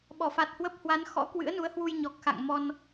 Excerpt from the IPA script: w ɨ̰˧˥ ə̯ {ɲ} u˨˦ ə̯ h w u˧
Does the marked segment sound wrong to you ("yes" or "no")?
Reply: yes